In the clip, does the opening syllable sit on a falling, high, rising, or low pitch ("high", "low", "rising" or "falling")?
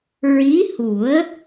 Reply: rising